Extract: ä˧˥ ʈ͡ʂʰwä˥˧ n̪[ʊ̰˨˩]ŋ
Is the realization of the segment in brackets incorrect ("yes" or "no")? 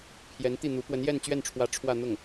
yes